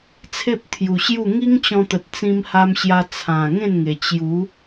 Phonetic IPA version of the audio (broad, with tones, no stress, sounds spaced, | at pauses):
t͡sʰ e˦ p̚ t̪ʰ j u˨˩ ɕ j u˥˧ ŋ i˦ ŋ t͡ɕ ɔ̃˧ t̪ ə˨ t̚ t͡s ĩ˧ m h a˧ m ɕ j a˧ t͡sʰ ã˨˩ ŋ ẽ˥˧ n ŋ e˨˩ t͡ɕ j u˨˦